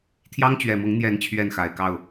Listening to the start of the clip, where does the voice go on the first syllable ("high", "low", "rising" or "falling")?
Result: high